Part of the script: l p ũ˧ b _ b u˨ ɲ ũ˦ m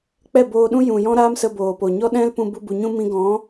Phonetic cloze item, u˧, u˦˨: u˧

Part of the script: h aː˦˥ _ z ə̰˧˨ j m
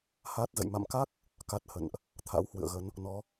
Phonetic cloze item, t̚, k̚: t̚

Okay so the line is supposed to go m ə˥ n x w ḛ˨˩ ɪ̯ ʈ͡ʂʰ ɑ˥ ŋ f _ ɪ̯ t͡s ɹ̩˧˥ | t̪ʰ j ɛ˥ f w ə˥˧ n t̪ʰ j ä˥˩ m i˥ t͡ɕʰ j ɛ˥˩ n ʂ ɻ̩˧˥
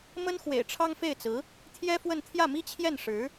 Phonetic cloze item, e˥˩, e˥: e˥˩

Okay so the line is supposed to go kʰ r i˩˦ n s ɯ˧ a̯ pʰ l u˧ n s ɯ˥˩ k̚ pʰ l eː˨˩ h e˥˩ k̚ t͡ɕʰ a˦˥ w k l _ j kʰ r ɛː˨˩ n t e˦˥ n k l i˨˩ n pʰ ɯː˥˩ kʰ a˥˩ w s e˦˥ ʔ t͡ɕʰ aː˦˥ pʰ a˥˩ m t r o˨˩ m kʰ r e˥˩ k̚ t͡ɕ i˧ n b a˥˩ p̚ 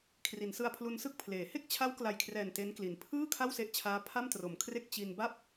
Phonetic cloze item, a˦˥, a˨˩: a˨˩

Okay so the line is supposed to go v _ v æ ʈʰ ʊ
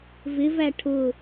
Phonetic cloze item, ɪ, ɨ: ɪ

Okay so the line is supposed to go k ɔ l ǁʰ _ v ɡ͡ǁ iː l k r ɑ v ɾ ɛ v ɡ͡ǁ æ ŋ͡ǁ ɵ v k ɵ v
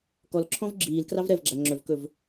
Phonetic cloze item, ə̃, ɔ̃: ɔ̃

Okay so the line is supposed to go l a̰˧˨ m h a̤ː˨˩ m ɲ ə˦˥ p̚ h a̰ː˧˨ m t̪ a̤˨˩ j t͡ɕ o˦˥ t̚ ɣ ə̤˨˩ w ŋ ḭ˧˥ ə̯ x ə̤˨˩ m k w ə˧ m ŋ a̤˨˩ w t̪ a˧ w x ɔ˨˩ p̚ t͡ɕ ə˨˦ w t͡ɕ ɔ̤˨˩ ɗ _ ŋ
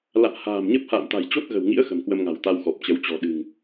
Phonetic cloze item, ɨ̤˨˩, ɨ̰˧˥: ɨ̤˨˩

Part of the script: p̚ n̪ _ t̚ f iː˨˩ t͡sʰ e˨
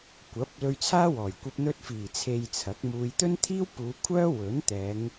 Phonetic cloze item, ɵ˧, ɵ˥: ɵ˧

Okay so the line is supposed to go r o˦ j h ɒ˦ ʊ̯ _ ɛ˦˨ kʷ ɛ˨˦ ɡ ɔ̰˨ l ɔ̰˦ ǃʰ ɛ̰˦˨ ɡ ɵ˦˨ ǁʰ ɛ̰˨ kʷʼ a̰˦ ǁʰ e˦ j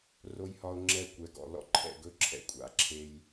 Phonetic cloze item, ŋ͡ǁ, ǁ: ŋ͡ǁ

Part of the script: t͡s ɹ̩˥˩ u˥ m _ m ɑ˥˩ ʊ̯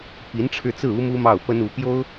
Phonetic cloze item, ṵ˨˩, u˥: u˥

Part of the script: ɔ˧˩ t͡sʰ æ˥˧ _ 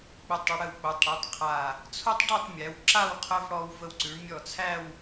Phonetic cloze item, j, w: w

